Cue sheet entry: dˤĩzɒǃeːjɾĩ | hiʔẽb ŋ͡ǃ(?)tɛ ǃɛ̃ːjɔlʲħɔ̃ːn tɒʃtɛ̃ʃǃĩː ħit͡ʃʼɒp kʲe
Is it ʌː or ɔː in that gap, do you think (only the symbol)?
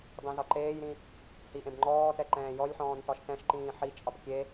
ɔː